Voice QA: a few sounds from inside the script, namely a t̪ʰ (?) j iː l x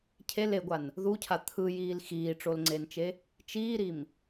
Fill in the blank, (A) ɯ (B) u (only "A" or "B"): A